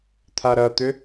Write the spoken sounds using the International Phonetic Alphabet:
t̪ʰ a ɾ ɐ t̪ ʏ

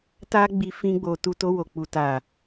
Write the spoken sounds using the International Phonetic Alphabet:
t a˦ ɡ͡b i˧ f ĩ˦ ɡ͡b o˧ t u˧ t o˧ w o˨ k͡p u˨ t a˨

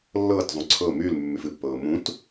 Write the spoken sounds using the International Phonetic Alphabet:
lː ɤː t zˤ ũ ǀʰ ɤ m y l mː y f ɨ pː ɤː m ũ t

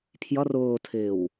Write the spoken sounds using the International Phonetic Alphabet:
pʰ j ʌ r ʊː tʰ ɪː w

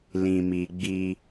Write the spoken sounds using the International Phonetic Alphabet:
l ĩ˧ m i˧ ɡ͡b i˦

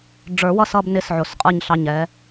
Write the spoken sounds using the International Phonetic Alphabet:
ɖ͡ʐ ə˞˨˩˦ w ʌ˦˨ s ʌ˦˨ b n ɪ˧˥ s ʕ ʊ˨˩ s qʼ ə˞˦˨ ɲ ɬ ɑ˦˨ ɲ ɛ˧˥

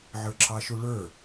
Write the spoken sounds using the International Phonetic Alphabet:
ʕ ə˞ ǁ ɑ ʃ u ɭ ə˞

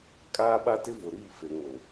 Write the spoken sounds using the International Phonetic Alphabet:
kʼ aː˦ ɓ a˦ t ɪ˦ v ʊ˨ ɾ iː˦˨ f e˨ ŋ o˨

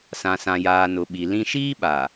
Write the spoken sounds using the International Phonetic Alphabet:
s ã˨ s ã˨ j aː˨ n ʊ˨ ɓ i˨ l ĩ˦ ʃ iː˦ ɓ a˨

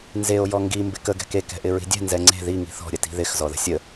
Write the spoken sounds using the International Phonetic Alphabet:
n z e o̯ j ɔ ŋ ɡ i m b ɪ k ə ɡ ɛ̤ k e k ɛ̤ ʔ ɪ ɹ i̤ dʲ ɛ̤ n z ɛ ŋ͡ǀ e̤ ð i ŋ i̤ θ ɔ̤ ɾʲ ə t i̤ ð ɪ x z ɔ ð ə̤ sʲ ə

